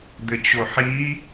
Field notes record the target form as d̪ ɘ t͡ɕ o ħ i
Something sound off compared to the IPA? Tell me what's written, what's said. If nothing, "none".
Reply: none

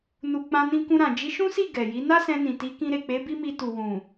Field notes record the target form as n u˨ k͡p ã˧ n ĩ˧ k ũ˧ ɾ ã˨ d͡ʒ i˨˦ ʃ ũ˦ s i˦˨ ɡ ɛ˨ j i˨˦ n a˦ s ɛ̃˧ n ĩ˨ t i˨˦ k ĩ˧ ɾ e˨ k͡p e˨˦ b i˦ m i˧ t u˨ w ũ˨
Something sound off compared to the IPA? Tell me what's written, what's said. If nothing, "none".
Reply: none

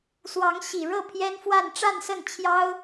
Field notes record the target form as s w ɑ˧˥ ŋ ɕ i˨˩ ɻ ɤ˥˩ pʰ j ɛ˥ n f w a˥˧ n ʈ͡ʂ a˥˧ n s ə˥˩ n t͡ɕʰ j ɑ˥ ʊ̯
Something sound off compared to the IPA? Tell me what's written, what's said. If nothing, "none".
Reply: none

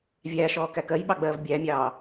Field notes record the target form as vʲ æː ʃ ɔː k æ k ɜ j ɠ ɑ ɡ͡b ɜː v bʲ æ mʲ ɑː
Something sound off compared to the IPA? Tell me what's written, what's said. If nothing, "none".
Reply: ɠ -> ɓ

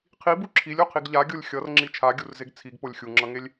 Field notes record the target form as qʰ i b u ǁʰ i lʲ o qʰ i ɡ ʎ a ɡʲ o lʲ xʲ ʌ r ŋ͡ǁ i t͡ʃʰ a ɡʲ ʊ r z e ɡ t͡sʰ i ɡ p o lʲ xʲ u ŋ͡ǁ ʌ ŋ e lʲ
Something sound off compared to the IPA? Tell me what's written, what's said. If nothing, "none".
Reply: ʊ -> u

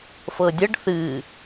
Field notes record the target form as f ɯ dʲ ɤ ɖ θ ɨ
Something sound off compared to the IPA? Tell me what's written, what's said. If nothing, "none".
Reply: ɯ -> ɤ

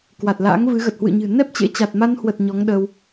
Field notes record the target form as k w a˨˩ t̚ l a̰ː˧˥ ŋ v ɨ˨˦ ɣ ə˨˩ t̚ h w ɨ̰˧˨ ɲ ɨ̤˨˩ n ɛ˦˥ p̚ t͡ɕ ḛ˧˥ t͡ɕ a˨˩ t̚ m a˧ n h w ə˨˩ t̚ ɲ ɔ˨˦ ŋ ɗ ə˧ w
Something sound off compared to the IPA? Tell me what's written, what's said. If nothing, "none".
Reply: none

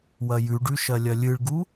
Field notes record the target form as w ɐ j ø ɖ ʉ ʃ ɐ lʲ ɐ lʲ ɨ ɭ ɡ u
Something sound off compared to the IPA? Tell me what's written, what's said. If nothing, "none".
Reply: ø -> ʉ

